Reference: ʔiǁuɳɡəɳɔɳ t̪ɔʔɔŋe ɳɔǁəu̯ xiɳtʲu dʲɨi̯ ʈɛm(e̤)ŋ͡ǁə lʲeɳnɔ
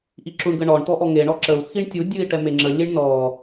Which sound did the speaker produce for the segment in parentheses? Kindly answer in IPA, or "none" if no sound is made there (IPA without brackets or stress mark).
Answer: e